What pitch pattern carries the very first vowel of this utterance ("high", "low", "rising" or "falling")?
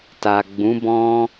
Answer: low